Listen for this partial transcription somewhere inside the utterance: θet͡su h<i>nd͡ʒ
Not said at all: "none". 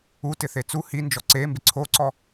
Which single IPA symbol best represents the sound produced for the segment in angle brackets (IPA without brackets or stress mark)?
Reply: i